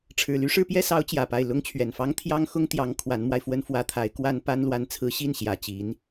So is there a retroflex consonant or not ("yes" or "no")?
yes